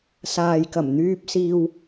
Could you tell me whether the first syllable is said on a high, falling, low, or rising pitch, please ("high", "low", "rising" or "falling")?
low